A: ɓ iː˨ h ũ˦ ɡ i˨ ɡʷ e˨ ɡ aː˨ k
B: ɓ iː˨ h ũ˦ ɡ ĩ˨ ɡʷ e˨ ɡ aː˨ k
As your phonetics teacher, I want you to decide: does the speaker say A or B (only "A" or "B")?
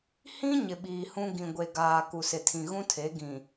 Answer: B